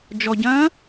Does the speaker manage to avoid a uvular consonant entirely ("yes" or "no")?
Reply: yes